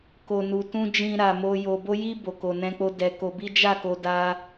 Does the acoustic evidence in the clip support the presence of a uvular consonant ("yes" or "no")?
no